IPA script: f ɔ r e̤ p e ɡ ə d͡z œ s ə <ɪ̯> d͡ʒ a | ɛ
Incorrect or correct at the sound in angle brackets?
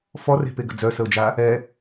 incorrect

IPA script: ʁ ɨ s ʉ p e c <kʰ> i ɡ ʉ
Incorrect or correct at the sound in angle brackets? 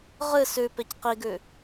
incorrect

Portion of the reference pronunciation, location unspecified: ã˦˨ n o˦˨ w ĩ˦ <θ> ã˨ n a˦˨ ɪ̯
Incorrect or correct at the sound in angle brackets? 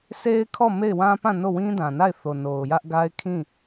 incorrect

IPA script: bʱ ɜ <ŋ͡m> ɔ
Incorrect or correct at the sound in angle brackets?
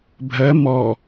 incorrect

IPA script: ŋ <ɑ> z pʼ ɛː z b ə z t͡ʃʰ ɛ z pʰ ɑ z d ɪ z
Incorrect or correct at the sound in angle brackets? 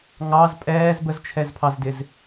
correct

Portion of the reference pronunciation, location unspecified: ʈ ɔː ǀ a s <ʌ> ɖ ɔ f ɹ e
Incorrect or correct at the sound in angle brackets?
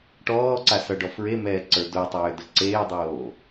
correct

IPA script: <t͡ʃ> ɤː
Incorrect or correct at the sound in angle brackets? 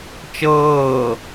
correct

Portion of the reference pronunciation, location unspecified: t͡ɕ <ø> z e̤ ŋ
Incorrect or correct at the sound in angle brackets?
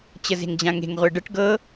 incorrect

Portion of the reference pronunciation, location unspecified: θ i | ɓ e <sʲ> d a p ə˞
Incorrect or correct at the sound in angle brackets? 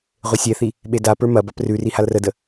incorrect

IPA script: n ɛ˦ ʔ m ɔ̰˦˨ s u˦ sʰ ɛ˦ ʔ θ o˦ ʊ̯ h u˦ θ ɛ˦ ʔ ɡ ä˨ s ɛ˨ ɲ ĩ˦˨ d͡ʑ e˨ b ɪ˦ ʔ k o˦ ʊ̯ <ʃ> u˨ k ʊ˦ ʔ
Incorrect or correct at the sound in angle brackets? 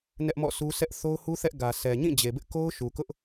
correct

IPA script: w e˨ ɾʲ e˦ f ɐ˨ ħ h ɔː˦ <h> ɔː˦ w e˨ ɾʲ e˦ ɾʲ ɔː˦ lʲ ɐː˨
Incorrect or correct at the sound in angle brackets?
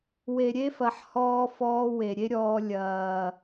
incorrect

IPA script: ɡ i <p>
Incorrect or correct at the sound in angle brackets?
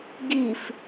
incorrect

